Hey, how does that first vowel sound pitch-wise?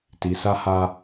low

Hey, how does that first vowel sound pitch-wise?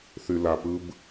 low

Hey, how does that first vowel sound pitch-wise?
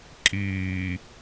low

